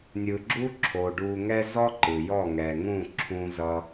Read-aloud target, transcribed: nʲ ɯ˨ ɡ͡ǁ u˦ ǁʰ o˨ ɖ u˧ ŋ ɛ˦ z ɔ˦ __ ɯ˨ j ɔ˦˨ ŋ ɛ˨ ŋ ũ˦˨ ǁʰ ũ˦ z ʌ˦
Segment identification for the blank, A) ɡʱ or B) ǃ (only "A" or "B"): B